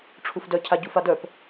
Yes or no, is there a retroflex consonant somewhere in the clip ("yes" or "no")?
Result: yes